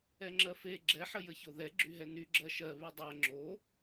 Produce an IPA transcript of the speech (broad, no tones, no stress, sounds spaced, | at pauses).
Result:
ɛ ŋ͡ǁ ɜ f e ɡ͡ǁ ɛ ħ ə j ə ç o ð ɛ ɡ͡ǁ y ɦ ɛ n y ɡ͡ǁ ɜ ʃ ɜ β y dˤ ɜ ŋ͡ǁ o